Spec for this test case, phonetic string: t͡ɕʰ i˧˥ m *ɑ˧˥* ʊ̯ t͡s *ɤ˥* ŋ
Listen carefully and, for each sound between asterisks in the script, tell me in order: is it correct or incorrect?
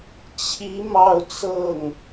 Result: incorrect: ɑ˥˧, incorrect: ɤ˥˩

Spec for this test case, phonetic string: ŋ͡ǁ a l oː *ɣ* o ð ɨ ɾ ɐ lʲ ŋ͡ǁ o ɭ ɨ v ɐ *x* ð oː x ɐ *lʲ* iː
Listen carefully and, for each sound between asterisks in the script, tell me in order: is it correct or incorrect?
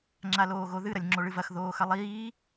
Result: correct, correct, incorrect: lˠ

